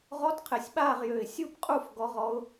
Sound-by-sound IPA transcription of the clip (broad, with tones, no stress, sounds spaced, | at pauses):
ʁ ɔ˧˥ t qʰ e˨˩ sʲ ɓ aː˦˨ ʁ j ø˨˩ ɪ̯ sʲ u˦˨ p qʼ u˦˨ f ɡ ɔ˧˥ ʁ ɔ˧˥ ʊ̯